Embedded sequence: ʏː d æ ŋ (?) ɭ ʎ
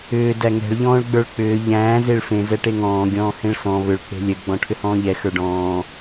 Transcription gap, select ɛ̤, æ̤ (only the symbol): ɛ̤